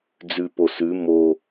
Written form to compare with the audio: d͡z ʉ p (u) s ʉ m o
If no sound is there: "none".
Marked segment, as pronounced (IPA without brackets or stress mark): o